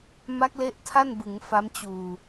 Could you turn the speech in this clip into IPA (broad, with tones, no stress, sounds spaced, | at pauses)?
m a˦˥ k̚ l e˦˥ ʔ tʰ a˥˩ n b ɯ˩˦ ŋ f a˦˥ m t͡ɕ uː˨˩